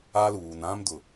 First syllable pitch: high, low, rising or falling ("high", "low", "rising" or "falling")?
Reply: high